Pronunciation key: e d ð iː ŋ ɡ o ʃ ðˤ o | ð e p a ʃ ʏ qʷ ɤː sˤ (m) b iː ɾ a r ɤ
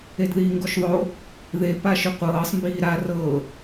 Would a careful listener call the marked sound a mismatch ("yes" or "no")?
no